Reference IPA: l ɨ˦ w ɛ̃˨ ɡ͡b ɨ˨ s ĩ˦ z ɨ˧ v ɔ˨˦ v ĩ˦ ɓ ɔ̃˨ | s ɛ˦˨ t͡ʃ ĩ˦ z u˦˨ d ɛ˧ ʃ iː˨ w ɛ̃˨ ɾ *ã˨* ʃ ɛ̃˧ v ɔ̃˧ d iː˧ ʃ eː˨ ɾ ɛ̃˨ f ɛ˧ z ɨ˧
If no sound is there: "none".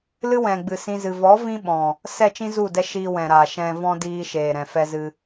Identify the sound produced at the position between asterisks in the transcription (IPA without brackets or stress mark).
a˨